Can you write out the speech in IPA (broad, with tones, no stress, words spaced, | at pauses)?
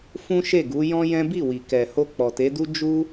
fũ˦ʃe˦˨ɡu˨˦ jɔ̃˦jɛ̃˦ bi˦˨wi˨kɛ˨ ho˧k͡pɔ˨te˨˦du˦ d͡ʒu˦